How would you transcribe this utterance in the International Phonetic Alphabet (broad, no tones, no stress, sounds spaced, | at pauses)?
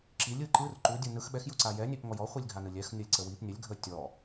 ǁ i lʲ ɯ ǃ ɯ r ǃ u dʲ u n ɯ x ɓ ɛ x j u ǀ a j ɛ nʲ ɛ p ŋ ɔ j ɔ χʷ i lʲ ɡʱ a n ɯ lʲ ɛ x nʲ ɔ lʲ ǀ ə w i p nʲ ə lʲ ɡʱ ə tʲ ɔ